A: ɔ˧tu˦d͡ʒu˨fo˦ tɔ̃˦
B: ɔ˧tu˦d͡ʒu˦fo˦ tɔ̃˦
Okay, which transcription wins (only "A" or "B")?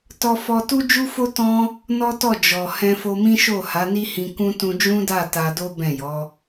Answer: B